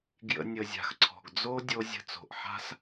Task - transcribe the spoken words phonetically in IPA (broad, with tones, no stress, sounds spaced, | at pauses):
ɡ j ə̰˧ nʲ ə˨ zʲ a̤˨ x ǀʰ ɔ̤˨ ɡ d͡z o˦ dʲ o˧ zʲ ə̤˧ t͡s o̤˨ ʔ ħ a̤˦ s